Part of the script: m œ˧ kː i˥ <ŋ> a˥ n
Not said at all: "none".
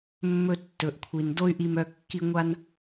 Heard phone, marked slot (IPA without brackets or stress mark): ŋʷ